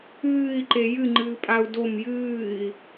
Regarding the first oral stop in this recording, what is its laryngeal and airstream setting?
click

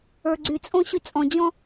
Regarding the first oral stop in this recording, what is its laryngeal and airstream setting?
click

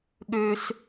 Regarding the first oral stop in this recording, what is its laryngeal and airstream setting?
implosive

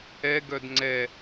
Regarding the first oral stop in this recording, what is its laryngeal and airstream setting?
plain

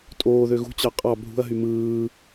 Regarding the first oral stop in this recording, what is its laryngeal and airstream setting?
ejective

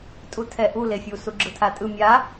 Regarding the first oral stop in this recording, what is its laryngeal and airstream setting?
ejective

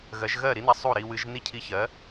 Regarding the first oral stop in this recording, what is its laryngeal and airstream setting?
aspirated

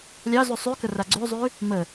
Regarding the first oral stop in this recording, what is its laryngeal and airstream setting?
plain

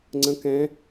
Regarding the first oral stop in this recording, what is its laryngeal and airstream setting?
click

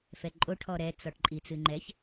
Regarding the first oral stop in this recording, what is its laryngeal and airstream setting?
click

